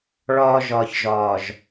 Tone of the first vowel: low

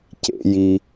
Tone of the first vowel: rising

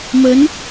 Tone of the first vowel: rising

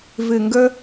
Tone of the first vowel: low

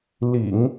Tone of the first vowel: low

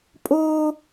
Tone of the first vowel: high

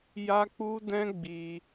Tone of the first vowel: high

